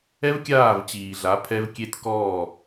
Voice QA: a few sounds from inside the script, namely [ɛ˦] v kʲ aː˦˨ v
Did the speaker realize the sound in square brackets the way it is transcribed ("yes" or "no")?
yes